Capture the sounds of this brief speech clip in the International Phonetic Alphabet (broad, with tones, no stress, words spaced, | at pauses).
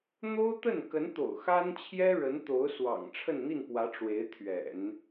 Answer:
n̪o˥ʊ̯ t̪ə˥˩n kə˧˥nt̪o̰˨˩ʊ̯ xa˥nt͡ɕʰjɛ˥ ɻə˧˥nt̪o˧˥ʊ̯swɑ̰˨˩ŋ ʈ͡ʂʰə˥˧nn̪i˥˩npwä˧˥ ʈ͡ʂwe˧˥ɪ̯t̪ʰɥɛ̰˨˩˦n